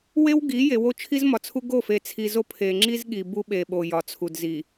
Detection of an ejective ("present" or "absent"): absent